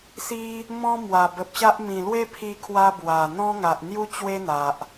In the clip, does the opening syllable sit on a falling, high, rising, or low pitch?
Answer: high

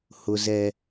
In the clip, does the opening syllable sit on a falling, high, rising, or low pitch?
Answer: high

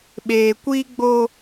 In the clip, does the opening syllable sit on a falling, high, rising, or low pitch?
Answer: low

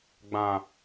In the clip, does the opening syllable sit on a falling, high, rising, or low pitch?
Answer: low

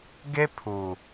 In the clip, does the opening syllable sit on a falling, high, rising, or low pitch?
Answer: high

